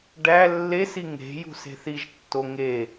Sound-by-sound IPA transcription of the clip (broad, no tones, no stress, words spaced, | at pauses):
ɖæ lːesi ŋe̤jṳ se̤θiʒtːo ŋe